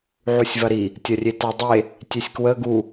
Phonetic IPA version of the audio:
ʕ u sʲ v ɐ ɾ i | tʲ ɐ rʲ e t a dˤ e | tʲ e sʲ k w ə ɡ u

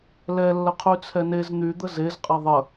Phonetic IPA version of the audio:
l ɛ lː ə qʰ y t͡sʰ ɛ n e z n̪ y d̪ ə z e z qʼ ɛ ðˤ ə

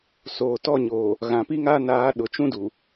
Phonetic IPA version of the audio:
s oː˨ t ɔ˦˨ ɲ oː˨ | ɣ ã˨ p i˦ ŋ aː˦ n aː˨˦ ɗ ʊ˨ t͡ʃ ũ˦ d u˨

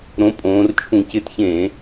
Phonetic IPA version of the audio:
ɾ õ˨˥ pʼ õː˩˧ r t͡ʃʰ ũ˧˩˧ c ɪ˨˥ t ç ẽː˧˩˧

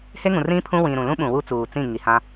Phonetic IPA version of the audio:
h e˦ ŋ ũ˨ r ĩ˦ pʰ ũ˦ w ĩ˨ ɾ ũ˨ l ũ˦ ɓ ũ˨ w u˦ t͡s uː˨ t͡s ĩ˦˨ ŋ i˨ h ã˦

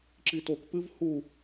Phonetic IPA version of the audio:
ǁ i t o k p ɨ v h u

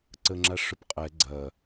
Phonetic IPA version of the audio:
ǀ ə ŋ͡ǁ a ʂ ʊ p qʼ ɛ ɡ͡ǀ ɐ

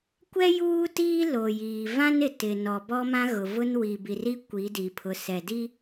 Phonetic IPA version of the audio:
kʷ ɛ˦ j uː˦ t iː˦ l o˨ j iː˨ v ã˦ n ɪ˨ t ɪ˨ n ɔ˨ b ɔ˦ m ã˦ ɣ ʊ˨ v ʊ˦ n w i˨ b i˨ r i˦ kʷ i˨˦ d i˨ pʰ ʊ˨ s ɛ˨ d i˦

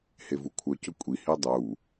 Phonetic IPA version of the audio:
h e v u kʷʰ œ c ɵ kʷʼ i h i dˤ u

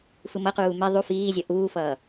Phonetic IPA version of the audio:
f ɯ m ʌ q uː m e ðˤ u f iː zʲ ʌ ʔ uː f ʌː

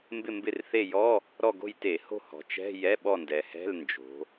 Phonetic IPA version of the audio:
m b ɪ˦˨ m b ɪ˦˨ r θ e˦˨ j ɔ˧˥˧ | ɾ ɔ˦˨ ɡ o̤˦˨ j t e˧˩˧ h o̤˦˨ h ɔ̤˩˧ t͡ʃ ɛ̤˧˥˧ j ɛ˧˥˧ ɓ ɔ˦˨ n d ɛ˩˧ h ɛ̤˧˥˧ l n d͡ʒ o̤˩˧

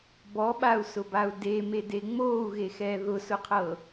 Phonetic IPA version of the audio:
b ɔ ɓ a u̯ s ʊ b a u̯ d e m e d e ŋ͡m oː u̯ ɣ e x ɛː ð ʊ s ʊ qʰ ɤ

